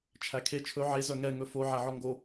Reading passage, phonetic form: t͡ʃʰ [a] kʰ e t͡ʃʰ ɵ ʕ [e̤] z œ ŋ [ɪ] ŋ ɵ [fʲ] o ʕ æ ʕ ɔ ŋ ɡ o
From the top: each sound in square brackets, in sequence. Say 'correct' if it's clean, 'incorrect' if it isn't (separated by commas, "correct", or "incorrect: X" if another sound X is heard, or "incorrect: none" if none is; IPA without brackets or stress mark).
incorrect: æ, incorrect: e, incorrect: ɛ, incorrect: f